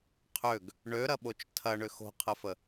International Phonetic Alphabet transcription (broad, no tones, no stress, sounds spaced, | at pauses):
qʰ ø ɡ | ɳ ø ɾ ɐ ɓ o t͡ʃ tʰ ɐ ɳ ʏ x o̤ qʰ ə f ə